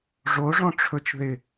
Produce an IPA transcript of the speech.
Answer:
ʐ o ʐ ɔ̃ ʈ͡ʂʰ ɵ t͡ʃ ð ɪ

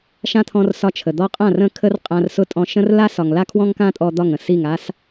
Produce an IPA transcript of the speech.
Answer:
ʃ ã˦ t̪ʰ ɔ̃˧ r s ɒ˧ t͡ʃʰ ə˨ d̪ ɔ˦ qʼ ã˦˨ r ə̃˦˨ kʰ ə˦ r qʼ ã˧ r s ʊ˦ tʼ ɔ̃˧ ʃ ə̃˦ r l a˦ s ɒ˨ ŋ l a˦ kʰ w ɔ̃˦ ŋ k ã˦ tʼ ɔ˧ d̪ ɒ˦˨ ŋ ə̃˧ s i˦˨ ŋ a˦ s

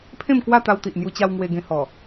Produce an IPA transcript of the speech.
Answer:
pʰ ẽ˥˧ m k w a˥˧ t̪ a˧ w t̪ i˨ ʔ n̪ j u˧ t͡ɕ a˧ w ŋ w e˧ ɡ ẽ˧ h ɔ˨˩

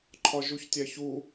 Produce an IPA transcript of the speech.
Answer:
ǃʰ ɒ ʒ u ç tʲ æ ç u

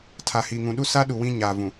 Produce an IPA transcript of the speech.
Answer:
tʰ a˨ h iː˨ ŋ ũ˨ ɗ u˦ s a˦ ɗ u˨ w ĩ˦ ɲ a˨ v ũ˨

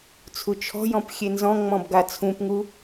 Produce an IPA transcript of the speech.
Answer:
t͡sʰ u t͡ʃʰ ɔ̤ j ɔ̃ p xʲ e n z ɔ̃ ŋ͡m ɔ̃ b ɡ a t͡sʰ ũ p ŋ u

